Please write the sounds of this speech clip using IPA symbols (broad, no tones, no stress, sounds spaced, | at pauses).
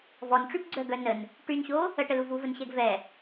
v ɔ n ʈ͡ʂ y b ɡ͡ǀ œ ɡ œ n ə n | ʈ y n ɕ o | ə ʈ ə l u v u v ə n ɕ ɛ ɡ v ɛ